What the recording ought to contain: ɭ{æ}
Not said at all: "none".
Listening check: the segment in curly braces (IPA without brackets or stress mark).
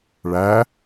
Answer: æ